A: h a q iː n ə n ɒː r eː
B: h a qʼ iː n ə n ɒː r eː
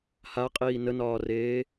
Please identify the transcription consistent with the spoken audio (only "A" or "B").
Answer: B